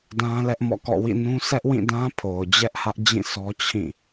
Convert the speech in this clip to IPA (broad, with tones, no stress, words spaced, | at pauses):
dã˦lɛ˦ʔmɔ̰˦˨kɔ̰˦˨ wḭ˦˨nũ˦ sʰɛ˦ʔwĩ˦˨ dã˦ pʰo˨ʊ̯d͡ʑɛ˦ʔhä˦ʔd͡ʑĩ˦˨ sʰɔ˦t͡ɕʰĩ˦˨